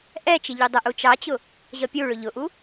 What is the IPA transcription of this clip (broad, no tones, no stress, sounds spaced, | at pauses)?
ʔ ɛ t͡ʃ ɪ ʎ u dˤ ə ʔ u t͡ʃ ɑ t͡ɕ ʊ | ʑ ʌ pʲ u ɭ ʊ ʎ ʊ ʔ u